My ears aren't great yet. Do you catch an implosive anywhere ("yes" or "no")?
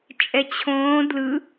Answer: no